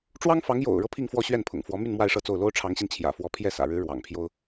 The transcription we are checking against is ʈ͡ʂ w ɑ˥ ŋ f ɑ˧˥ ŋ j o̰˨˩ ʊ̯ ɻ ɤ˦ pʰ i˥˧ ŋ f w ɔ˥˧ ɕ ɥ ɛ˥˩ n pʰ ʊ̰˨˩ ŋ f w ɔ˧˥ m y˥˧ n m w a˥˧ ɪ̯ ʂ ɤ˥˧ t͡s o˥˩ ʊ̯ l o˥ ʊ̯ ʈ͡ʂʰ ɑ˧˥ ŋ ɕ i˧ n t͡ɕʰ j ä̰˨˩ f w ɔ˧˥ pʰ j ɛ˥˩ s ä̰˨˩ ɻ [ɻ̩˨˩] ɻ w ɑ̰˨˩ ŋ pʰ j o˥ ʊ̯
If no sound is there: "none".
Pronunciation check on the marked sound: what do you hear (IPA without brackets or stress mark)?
ɻ̩˧˥